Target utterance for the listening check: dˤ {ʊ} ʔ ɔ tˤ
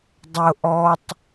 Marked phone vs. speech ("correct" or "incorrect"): correct